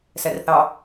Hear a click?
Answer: no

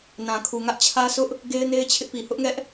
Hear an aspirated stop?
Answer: yes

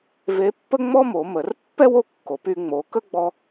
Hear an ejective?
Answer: no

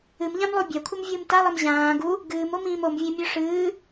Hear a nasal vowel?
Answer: yes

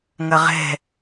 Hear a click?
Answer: no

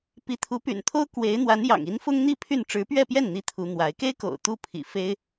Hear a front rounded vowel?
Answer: yes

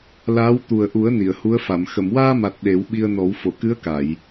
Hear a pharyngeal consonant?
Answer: no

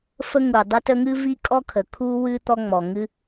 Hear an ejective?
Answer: yes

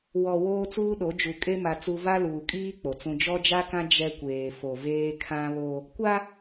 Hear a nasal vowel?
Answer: yes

